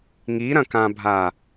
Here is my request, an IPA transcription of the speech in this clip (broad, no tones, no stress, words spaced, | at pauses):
ŋiɾɐ̃kãbʱa